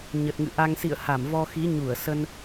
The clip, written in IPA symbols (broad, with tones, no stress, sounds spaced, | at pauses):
ɲ ə˨˩ t̚ ŋ ɨ̰˧˨ ʔ a˧ ŋ s ḭ˧˨ ə̯ h a˧˩ m v ɔ˧ x i˨˦ ɲ u˧˩ ə̯ s ə˧ n